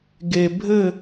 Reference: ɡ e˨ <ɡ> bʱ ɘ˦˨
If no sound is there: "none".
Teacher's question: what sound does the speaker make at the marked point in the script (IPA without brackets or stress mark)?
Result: none